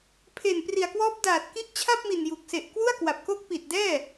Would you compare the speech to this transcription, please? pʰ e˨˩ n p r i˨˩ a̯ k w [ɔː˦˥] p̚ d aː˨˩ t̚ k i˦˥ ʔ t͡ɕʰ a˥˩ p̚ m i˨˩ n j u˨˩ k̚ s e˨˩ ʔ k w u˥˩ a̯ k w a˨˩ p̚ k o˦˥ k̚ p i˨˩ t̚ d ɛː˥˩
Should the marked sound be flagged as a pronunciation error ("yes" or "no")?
no